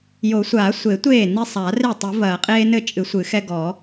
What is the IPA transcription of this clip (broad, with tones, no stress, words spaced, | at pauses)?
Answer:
jo˨˩˦sʷaː˨˩˦sʷe˨˩˦ tʷeː˥˩ ni˦ sˤaː˨˩˦re˥˩ tˤi˨˩˦vɐː˨˩˦ qʼeː˦nɘ˥˩ t͡ʃʼɨ˨˩˦sʷɨ˨˩˦ xɛ˦ɡɔ˨˩˦